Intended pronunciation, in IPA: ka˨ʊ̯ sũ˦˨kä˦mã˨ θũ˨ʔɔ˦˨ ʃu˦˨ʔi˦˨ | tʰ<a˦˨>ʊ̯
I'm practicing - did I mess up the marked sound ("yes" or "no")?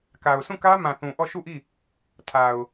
yes